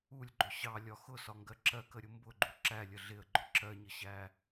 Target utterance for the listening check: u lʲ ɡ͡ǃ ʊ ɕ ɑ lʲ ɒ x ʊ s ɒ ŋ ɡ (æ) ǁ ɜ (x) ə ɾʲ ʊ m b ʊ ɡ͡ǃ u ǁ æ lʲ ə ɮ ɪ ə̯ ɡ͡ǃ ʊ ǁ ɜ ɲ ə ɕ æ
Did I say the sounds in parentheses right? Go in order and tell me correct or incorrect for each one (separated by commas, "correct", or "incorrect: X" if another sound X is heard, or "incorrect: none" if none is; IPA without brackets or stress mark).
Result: incorrect: ɜ, incorrect: k